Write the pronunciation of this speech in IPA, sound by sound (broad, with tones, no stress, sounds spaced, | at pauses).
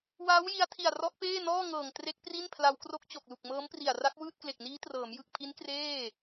w aː˦˥ w j i˧ a̯ tʰ i˨˩ a̯ r ɔ˦˥ ʔ p eː˥˩ n ɔː˥˩ ŋ ɤː˨˩ ŋ t r e˦˥ k̚ p r i˥˩ n pʰ l a˧ w k r o˦˥ k̚ t͡ɕ o˨˩ k̚ l u˨˩ k̚ m ɤː˦˥ m p r i˨˩ a̯ r a˦˥ k̚ w ɯː˥˩ t̚ k l e˨˩ k̚ n iː˦˥ t r ɤː˩˦ m j ɯ˨˩ k̚ pʰ i˦˥ n k r eː˥˩